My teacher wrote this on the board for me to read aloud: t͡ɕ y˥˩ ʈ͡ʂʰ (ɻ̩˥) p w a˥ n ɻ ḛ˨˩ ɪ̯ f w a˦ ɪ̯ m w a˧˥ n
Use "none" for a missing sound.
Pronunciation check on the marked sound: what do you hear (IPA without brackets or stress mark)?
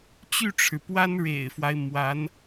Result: ɻ̩˩